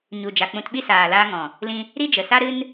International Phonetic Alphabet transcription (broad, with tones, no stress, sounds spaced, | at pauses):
ɲ u˨ d͡ʒ a˨ k͡p ũ˧ t ɓ i˦ s aː˨ l aː˧ ŋ ɔ̃˨ | l ĩ˧ | ɾ i˦ d͡ʒ ə˨ s a˦ ɾ ɨ˦ n